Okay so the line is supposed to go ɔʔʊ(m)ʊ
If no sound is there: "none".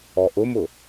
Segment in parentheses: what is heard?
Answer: m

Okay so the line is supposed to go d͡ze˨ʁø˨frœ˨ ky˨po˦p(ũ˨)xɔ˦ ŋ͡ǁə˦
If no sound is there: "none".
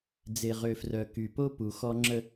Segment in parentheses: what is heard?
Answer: u˨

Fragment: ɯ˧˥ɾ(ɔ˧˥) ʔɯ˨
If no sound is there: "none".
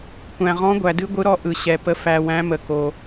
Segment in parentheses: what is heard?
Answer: ɔ˧˥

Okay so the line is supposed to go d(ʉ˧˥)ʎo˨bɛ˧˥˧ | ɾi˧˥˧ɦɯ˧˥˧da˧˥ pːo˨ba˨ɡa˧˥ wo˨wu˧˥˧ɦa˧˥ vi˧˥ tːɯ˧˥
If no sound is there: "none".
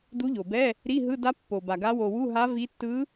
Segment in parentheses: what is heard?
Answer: u˧˥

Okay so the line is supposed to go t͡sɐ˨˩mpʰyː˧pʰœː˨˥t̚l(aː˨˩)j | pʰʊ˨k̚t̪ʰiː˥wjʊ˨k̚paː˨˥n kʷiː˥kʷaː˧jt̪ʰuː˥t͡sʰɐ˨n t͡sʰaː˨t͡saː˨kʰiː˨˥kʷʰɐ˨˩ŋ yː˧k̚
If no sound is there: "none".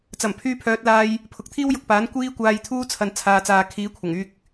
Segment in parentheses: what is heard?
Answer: aː˧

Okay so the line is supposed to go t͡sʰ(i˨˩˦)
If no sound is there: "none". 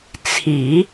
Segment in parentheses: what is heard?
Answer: i˨˩˦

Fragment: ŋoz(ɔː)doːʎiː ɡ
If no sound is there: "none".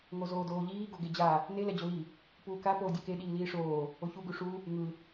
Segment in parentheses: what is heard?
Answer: oː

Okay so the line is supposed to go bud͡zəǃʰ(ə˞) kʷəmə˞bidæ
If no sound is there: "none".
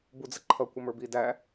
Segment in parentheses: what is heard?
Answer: ʌ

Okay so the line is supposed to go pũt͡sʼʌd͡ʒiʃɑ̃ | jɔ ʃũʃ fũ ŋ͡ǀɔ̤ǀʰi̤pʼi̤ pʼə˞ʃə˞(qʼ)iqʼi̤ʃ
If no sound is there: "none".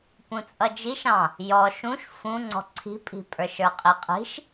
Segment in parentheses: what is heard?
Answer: qʼ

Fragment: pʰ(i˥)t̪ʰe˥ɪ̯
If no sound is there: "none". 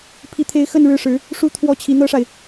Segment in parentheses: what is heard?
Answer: i˥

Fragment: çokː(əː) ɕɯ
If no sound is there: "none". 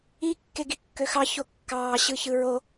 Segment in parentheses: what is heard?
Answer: ɑː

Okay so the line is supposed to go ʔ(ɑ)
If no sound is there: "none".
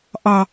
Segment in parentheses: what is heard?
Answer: ɑ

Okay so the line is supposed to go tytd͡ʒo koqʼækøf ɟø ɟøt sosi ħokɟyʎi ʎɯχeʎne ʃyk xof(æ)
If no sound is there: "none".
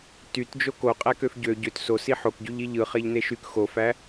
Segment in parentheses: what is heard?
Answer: æ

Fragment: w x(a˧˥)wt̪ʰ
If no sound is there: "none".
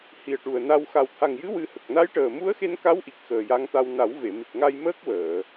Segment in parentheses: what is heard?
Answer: a˨˩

